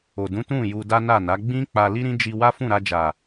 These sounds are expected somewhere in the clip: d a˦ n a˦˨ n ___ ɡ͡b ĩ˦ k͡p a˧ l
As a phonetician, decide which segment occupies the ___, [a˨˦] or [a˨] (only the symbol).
a˨˦